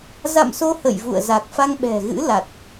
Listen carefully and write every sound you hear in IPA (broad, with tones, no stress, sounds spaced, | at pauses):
z a̰˧˨ m s o˧ h ə̰˧˨ j v ṵ˧˨ ə̯ z a˨˩ k̚ f a˧ ŋ ɓ ɛ̤˨˩ ɣ ɨ̰˧˥ l a˨˩ t̚